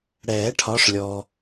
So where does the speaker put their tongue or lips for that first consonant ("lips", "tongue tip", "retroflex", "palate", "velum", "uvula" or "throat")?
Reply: retroflex